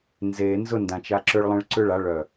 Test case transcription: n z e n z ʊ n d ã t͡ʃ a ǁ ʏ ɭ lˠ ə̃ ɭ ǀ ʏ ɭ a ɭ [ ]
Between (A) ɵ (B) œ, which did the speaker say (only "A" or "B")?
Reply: B